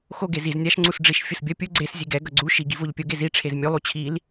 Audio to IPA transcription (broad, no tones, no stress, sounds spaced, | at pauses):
x o ɡ e z i z nʲ a ʃ ŋ͡ǀ u s ɖ͡ʐ i ʃ fʲ ɯ s bʲ ʌ pʲ u ɡ͡ǀ e s zʲ e ɡ ɛ ɡ ʌ ɡ͡ǀ u ʃ i ɡ i v o ʎ pʲ o ɡ e z i ʈ͡ʂʰ e z mʲ u lˠ u t͡ɕʰ i l